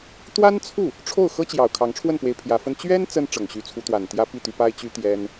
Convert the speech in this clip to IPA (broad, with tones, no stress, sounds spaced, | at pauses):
t̪ w a˥ n t͡sʰ u˥˩ | ʈ͡ʂʰ o˥˩ ʊ̯ x ɤ˥ t͡ɕ j ɑ˨˩ ʊ̯ kʰ ɑ˧˥ ŋ ʈ͡ʂʰ w ə˥˩ n p w e˧˥ ɪ̯ pʰ j ä˧˥ f ə˥ n t͡ɕ ɥ ɛ˥ n t͡s ə˥ n ʈ͡ʂ ɤ˨˩ ŋ ɕ y˧˥ t͡sʰ u˧˥ t̪ w a˨˩ n t̪ j ä˥ p i˥˩ t̪ y˧˥ p a˥ ɪ̯ t͡ɕ y˥ t̪ j ɛ˥ n